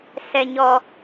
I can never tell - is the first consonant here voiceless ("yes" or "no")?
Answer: yes